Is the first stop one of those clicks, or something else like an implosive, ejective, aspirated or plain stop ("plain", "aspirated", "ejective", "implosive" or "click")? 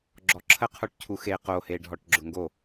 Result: click